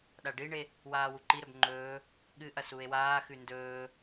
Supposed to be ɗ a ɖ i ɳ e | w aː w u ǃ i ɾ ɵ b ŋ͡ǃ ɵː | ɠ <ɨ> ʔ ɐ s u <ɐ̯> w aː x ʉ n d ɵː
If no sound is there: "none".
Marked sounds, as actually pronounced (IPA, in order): ɨ, e̯

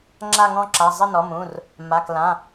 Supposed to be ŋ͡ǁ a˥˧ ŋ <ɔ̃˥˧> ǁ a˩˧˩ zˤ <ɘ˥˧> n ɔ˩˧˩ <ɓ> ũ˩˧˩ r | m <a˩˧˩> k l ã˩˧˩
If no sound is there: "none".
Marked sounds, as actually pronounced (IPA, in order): ɔ̃˥˧, ɘ˥˧, m, a˩˧˩

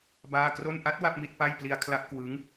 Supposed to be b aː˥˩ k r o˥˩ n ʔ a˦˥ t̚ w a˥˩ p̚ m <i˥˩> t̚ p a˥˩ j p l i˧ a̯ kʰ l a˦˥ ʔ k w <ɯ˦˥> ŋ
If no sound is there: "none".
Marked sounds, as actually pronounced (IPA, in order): i˥˩, ɯ˦˥

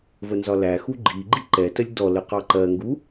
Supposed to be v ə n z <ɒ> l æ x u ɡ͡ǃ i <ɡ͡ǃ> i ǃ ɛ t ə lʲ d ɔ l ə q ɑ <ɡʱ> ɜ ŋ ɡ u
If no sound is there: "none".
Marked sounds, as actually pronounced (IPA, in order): ɒ, ɡ͡ǃ, ǃ

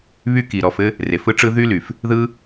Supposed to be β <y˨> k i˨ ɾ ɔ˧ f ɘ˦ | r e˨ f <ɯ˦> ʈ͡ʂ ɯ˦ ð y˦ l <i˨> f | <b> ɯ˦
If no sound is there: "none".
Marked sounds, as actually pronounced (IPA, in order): y˦, ɯ˦, y˨, ð

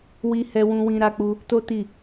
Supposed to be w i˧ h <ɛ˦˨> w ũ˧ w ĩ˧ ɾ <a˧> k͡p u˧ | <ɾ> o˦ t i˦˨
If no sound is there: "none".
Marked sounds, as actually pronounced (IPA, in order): ɛ˧, a˧, t

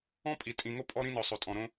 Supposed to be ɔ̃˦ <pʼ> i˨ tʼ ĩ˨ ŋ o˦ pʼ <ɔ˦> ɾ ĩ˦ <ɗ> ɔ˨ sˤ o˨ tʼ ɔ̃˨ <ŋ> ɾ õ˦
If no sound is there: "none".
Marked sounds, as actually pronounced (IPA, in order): pʼ, ɔ˦, n, none

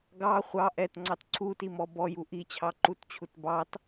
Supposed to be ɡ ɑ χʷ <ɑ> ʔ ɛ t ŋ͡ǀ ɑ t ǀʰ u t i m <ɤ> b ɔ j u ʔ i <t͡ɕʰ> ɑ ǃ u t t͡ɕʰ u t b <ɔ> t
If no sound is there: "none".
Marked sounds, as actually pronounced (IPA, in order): ɑ, ɔ, t͡ɕʰ, ɑ

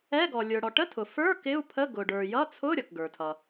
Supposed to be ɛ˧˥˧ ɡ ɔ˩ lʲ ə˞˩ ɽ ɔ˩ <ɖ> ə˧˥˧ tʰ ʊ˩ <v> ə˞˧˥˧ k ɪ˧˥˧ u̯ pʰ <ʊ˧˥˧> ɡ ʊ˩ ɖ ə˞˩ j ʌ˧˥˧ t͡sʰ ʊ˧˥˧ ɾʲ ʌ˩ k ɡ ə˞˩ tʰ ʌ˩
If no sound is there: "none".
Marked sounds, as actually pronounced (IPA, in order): ʈ, f, ə˧˥˧

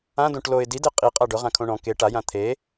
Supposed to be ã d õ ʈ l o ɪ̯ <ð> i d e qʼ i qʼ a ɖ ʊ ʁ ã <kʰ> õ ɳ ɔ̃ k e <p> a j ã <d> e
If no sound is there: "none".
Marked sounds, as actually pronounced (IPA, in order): d, kʰ, ʈ, t̪ʰ

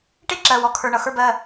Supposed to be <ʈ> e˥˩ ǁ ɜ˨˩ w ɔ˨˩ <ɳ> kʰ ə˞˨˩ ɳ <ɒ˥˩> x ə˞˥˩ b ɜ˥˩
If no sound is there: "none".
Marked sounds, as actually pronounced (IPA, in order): ʈ, none, ʌ˥˩

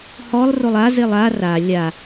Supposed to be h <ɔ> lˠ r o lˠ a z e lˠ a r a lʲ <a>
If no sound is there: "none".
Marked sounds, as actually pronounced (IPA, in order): ɔ, a

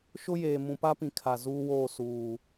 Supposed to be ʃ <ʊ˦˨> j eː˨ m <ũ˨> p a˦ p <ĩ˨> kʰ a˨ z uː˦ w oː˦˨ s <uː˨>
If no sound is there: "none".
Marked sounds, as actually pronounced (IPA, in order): ʊ˦, ũ˨, ĩ˨, uː˨

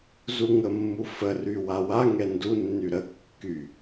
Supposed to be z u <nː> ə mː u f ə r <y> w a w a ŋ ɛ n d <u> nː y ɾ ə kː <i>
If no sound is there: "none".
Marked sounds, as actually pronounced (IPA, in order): ŋ, y, u, y

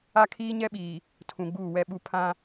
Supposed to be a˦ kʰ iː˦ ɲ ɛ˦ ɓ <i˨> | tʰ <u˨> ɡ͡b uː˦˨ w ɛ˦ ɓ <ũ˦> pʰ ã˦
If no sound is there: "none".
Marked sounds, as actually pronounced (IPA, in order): iː˨, ũ˨, u˦

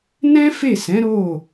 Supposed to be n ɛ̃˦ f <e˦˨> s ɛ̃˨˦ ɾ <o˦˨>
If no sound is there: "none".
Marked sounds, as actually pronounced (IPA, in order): e˦˨, o˦˨

